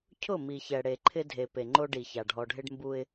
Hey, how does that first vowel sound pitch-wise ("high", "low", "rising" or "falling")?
falling